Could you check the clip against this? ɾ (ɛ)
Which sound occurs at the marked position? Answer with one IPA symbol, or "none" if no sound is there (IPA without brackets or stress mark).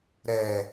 ɛ